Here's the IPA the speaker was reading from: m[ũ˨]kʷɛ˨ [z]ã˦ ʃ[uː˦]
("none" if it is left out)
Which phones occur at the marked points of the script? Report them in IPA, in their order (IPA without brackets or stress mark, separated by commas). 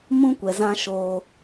ũ˦, z, oː˦